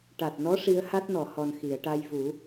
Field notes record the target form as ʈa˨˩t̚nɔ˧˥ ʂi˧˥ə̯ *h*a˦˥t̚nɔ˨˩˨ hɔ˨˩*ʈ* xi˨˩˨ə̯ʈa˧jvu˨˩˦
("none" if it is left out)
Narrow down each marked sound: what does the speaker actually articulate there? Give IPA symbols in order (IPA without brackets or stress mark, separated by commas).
h, n